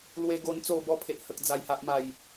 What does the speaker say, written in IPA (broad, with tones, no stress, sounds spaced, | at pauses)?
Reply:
l w e˧ ɡ o˧ n t͡s o˨˩ b ɔ˨˩ pʰ e˨ ʔ h ə˨ k̚ d͡z a˨˩ j h a˨ ʔ m a˨˩ j